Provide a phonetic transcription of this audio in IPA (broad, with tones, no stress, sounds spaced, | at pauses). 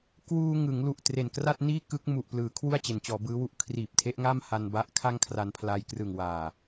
k w uː˧ ŋ ɯ˩˦ ŋ l u˨˩ ʔ t r e˨˩ n k r a˥˩ t̚ n iː˥˩ k ɯ˦˥ k̚ m u˨˩ ʔ p l ɯː˩˦ kʰ w u˥˩ a̯ t͡ɕ e˩˦ n t͡ɕ ɔː˩˦ b ɯː˦˥ w u˦˥ ʔ kʰ r iː˨˩ p̚ tʰ e˦˥ ʔ ŋ a˥˩ m h a˧ n b a˦˥ ʔ kʰ a˥˩ ŋ kʰ r a˧ n pʰ l a˧ j k r ɯ˨˩ ŋ w aː˨˩